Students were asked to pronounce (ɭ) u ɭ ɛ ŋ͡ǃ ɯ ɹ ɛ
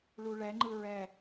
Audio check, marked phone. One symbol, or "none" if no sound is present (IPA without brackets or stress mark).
ɭ